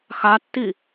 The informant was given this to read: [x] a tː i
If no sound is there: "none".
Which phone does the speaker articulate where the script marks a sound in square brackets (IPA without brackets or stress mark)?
x